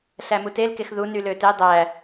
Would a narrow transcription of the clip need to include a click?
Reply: no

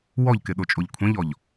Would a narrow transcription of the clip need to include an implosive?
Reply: yes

